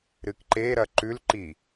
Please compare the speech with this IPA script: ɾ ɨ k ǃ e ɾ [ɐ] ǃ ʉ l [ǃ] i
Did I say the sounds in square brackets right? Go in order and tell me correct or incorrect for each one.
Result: correct, correct

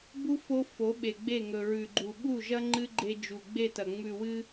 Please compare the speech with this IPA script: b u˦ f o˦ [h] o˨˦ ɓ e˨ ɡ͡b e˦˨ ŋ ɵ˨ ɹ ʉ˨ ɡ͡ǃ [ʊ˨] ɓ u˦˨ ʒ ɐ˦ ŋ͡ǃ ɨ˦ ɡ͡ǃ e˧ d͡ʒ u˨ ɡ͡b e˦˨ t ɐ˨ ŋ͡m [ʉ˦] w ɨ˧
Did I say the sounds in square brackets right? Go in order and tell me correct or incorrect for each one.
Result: incorrect, incorrect, incorrect

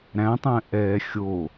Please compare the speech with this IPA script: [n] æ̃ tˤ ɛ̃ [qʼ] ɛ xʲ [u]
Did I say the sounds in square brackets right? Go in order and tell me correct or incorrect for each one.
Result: incorrect, incorrect, incorrect

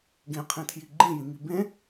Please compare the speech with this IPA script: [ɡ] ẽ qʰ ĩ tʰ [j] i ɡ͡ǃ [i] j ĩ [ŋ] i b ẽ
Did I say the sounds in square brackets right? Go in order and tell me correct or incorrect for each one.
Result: correct, correct, incorrect, correct

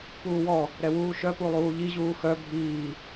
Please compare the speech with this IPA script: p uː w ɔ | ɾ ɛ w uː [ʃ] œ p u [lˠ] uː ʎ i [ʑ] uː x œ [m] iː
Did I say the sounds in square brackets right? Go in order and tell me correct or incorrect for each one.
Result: correct, correct, correct, incorrect

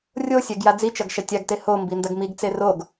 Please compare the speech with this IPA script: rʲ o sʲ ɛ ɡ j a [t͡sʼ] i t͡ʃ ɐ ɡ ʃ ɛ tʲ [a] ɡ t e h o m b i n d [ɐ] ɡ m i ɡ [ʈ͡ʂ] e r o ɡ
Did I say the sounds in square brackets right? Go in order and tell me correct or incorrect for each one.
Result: incorrect, correct, correct, incorrect

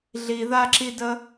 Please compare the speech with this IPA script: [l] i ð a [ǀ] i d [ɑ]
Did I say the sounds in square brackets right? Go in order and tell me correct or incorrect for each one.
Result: incorrect, incorrect, incorrect

